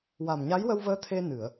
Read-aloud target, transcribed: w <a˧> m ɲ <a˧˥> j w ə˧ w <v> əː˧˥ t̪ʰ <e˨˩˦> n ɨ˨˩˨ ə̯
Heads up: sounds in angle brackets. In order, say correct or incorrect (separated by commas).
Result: incorrect, correct, correct, incorrect